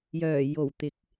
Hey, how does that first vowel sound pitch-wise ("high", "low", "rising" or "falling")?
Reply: low